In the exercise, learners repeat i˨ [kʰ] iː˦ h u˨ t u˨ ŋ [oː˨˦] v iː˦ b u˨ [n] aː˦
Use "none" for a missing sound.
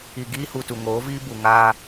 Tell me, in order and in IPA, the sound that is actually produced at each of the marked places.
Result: ɡ, oː˨˦, ŋ

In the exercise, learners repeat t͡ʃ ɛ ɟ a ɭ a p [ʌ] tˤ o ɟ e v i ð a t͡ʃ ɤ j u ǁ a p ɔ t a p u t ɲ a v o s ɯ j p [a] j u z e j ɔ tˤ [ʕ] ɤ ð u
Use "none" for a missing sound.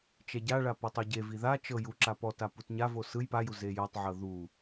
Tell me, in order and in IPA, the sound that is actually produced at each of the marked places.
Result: ɔ, a, ʕ

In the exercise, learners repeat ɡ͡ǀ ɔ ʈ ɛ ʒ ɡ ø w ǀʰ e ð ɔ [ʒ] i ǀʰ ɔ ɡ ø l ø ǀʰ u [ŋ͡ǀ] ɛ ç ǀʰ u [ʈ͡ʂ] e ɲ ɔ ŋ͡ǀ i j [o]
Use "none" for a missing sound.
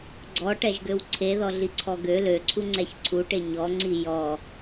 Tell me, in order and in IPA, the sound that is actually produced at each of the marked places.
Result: ɮ, ŋ͡ǀ, ʈ, ɔ

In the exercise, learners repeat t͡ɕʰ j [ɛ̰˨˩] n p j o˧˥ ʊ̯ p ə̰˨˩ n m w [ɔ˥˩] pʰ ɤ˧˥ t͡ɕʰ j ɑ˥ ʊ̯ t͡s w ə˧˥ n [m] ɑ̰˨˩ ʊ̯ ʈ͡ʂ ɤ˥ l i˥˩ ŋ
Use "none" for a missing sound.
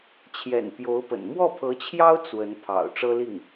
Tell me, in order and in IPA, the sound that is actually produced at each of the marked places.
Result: ɛ̰˨˩, ɔ˥˩, pʰ

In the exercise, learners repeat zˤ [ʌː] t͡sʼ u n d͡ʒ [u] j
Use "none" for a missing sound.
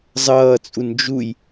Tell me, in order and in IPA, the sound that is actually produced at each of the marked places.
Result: ʌː, u

